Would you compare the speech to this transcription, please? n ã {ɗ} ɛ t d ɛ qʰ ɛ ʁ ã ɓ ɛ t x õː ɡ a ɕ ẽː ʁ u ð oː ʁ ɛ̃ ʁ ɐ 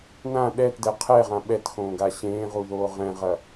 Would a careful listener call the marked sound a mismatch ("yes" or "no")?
no